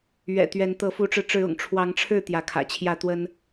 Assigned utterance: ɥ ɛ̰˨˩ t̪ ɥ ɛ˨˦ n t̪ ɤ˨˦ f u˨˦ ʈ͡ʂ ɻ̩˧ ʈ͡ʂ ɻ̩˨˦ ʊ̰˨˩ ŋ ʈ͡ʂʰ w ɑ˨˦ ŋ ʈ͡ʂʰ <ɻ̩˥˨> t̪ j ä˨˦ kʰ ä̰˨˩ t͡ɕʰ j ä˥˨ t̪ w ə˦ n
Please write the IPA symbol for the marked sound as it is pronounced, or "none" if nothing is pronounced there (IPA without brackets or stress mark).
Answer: ɻ̩˥˨